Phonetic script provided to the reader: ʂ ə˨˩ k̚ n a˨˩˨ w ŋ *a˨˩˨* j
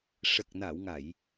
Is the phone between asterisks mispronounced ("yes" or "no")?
no